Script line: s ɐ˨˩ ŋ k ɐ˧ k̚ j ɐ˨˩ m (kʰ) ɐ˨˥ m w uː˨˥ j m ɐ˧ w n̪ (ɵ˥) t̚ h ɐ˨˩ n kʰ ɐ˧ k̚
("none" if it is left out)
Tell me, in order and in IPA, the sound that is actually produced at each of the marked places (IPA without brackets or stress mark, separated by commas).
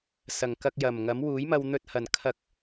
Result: ŋ, ɵ˧